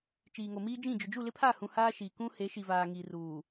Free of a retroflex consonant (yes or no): yes